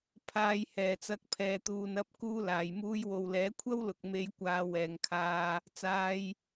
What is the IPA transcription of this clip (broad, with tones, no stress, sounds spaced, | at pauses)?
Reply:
pʰ aː˨˧ j h ɛː˨ t͡s ɐ˧ k̚ pʰ ɛː˨ t̪ uː˨ n ɐ˨˥ p̚ k uː˥ l aː˨ j m uː˥ j w o˨ w l ɛː˨˥ kʷʰ ɐ˥ w l ʊ˨ k̚ m e˧ j kʷ aː˨˧ w ɛː˨ ŋ kʰ aː˧ | t͡s aː˧ j